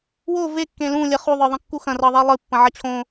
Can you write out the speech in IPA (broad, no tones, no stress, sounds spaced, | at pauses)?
w o v e kː ẽ l ũ lʲ ɐ χ u ðˤ ə˞ ðˤ ɐ̃ kː u x ɐ̃ r ɤ ðˤ e lˠ ɨ pː ɐ̃ ʕ ɐ t͡ɕʰ õ